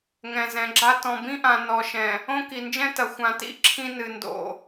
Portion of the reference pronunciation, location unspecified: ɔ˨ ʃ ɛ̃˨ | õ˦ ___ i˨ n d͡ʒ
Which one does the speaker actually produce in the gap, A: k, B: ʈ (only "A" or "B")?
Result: A